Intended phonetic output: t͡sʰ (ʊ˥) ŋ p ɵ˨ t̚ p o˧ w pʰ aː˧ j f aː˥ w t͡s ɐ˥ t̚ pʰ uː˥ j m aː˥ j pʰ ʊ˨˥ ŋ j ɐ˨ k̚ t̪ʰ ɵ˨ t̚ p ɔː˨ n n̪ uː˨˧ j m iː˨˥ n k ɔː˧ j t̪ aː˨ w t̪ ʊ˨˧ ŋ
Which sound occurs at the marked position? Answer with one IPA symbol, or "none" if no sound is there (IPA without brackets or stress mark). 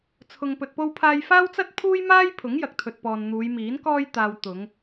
ʊ˨